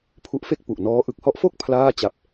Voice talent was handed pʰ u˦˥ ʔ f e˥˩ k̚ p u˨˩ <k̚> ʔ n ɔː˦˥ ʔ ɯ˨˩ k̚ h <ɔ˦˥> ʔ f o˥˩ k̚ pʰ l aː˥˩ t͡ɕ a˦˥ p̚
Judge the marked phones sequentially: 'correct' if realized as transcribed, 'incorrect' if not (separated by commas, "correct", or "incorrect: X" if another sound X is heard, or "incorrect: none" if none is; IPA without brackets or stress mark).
incorrect: none, correct